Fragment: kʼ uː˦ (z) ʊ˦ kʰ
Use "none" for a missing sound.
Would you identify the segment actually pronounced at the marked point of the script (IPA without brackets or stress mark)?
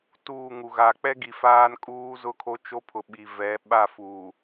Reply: z